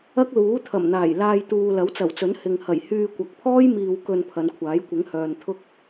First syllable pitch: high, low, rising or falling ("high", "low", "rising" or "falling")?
high